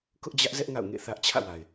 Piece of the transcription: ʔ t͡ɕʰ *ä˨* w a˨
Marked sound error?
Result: yes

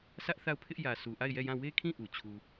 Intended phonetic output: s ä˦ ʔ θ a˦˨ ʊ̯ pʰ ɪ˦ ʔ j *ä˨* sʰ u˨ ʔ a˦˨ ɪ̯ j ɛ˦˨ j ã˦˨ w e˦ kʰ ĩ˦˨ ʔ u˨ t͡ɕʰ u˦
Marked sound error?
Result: no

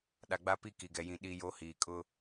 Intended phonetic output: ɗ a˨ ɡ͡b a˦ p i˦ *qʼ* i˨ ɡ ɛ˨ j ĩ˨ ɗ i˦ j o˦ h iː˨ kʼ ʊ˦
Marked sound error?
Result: yes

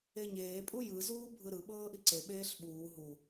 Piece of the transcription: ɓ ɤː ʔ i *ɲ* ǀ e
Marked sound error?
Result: yes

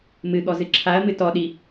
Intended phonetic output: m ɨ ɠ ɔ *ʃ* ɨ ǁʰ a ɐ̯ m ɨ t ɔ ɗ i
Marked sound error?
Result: yes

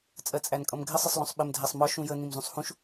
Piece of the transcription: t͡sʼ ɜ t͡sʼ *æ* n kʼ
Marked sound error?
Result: no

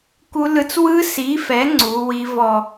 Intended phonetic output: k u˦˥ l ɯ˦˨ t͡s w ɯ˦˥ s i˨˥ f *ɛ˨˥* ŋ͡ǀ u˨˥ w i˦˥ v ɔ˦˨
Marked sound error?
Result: no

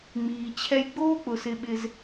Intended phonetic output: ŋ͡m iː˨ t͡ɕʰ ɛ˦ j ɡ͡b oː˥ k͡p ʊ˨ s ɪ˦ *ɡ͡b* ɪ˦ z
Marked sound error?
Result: yes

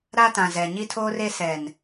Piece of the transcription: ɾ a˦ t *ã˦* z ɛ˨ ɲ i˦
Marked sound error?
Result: yes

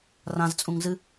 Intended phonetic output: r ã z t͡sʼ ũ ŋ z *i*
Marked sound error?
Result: yes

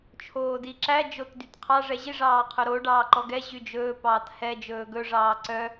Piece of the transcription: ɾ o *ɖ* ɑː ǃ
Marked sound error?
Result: no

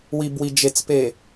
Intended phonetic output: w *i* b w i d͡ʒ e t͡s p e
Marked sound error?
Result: no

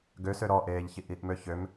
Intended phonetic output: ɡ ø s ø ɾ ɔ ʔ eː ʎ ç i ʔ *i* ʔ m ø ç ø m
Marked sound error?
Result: no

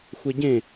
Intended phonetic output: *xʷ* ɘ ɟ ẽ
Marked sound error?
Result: no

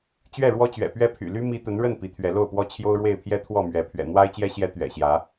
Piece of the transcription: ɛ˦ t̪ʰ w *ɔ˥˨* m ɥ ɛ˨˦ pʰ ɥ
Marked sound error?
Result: no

